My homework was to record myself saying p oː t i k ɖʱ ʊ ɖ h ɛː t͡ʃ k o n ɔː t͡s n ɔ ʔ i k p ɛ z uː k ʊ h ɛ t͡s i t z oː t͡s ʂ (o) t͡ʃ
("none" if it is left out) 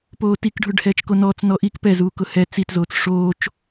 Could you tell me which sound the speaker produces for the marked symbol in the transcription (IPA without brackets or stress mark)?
oː